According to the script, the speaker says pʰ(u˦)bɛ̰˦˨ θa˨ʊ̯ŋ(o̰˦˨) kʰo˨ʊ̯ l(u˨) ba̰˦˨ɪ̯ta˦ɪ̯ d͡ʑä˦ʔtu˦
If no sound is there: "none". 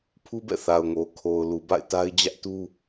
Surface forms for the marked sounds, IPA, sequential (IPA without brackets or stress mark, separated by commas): u˦, o˨, u˨